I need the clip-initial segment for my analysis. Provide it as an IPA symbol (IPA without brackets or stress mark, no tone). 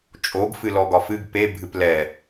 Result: t͡ʃʼ